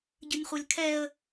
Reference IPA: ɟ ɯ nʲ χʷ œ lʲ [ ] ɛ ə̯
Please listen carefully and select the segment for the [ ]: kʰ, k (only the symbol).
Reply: kʰ